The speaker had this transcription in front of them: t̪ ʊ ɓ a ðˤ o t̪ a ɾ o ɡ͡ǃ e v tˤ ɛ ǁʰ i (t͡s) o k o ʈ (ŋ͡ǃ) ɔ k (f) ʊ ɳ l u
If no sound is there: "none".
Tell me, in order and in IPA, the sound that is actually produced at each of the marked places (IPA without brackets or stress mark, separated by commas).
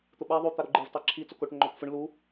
t͡s, ŋ͡ǃ, f